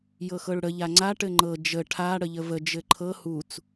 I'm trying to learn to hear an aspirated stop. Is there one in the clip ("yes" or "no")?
yes